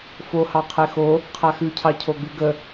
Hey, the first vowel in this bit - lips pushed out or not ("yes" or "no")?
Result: yes